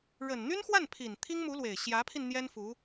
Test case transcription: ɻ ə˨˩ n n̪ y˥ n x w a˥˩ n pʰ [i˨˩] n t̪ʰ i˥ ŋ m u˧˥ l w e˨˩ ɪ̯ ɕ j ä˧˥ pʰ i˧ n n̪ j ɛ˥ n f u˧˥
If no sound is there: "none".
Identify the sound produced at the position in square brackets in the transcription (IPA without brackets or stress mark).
i˨˩